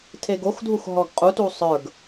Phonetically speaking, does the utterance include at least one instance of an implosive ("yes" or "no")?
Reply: no